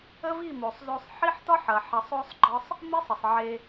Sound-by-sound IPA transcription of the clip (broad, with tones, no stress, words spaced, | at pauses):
ə˦vi˦˨mo˨sˤzo˧sˤ ħi˦ħtɒ˦ħɐ˨ ħɐ˧sˤo˦sˤɡ͡ǃɒ˦sˤ | mi˦sˤə˨sˤ ʕe˧